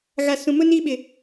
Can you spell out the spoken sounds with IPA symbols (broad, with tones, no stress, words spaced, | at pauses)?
ɣa˨sũ˨mʊ˦ niː˦ɓɪ˨